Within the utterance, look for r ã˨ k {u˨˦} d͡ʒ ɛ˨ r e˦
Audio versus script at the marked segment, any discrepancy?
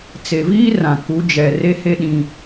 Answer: no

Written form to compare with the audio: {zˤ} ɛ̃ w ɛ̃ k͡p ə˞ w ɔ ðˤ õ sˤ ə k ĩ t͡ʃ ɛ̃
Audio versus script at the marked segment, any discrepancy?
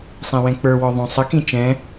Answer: yes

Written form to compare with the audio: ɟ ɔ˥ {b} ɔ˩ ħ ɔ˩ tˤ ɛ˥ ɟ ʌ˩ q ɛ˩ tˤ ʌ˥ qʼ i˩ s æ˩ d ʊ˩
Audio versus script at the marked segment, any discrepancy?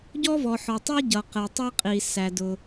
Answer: yes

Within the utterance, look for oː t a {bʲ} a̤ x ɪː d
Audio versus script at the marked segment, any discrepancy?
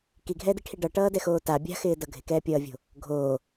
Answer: no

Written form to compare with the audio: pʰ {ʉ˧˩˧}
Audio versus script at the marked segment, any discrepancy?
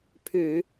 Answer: no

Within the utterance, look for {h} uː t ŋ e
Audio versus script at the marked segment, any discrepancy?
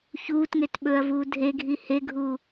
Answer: yes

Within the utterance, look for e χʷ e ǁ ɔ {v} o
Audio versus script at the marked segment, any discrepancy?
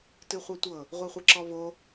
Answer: no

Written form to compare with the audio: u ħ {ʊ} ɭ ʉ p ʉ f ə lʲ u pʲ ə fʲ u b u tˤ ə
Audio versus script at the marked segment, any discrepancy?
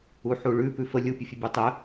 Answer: yes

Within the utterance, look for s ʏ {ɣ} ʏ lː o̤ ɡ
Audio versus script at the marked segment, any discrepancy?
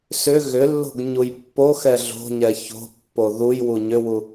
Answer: no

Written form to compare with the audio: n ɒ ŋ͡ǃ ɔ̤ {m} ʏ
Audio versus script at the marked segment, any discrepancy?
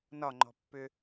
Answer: yes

